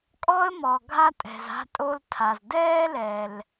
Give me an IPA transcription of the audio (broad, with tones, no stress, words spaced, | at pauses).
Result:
kʼɔ˥ə̯mɔ˩ ɡʱa˥tʼɛ̤˩z a̤˥tʼo˥ltʰa˩z dɛː˥lɛ˩l